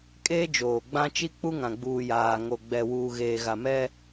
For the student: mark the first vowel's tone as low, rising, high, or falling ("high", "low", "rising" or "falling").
high